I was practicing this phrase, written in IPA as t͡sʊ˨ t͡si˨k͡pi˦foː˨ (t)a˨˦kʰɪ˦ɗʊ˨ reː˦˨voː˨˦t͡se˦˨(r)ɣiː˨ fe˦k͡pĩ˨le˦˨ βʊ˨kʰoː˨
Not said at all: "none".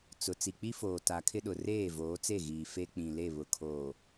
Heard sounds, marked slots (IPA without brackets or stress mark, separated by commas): t, none